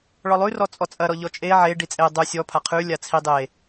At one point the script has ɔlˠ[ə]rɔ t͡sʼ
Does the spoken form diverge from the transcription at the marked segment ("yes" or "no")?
yes